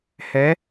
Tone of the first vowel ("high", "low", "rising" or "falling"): rising